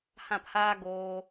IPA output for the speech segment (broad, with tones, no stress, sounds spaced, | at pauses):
h ã˦˨ p h aː˦ ɡ oː˧